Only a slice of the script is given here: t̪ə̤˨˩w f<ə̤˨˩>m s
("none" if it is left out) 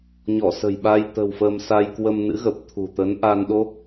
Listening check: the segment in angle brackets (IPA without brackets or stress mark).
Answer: ə˧